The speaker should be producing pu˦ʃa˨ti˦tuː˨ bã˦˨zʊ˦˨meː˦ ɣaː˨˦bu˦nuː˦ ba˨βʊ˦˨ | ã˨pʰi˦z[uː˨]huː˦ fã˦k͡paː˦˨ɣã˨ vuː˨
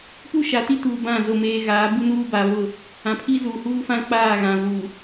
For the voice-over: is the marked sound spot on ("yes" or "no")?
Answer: yes